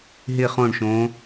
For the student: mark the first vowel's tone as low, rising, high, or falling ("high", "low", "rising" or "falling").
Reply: falling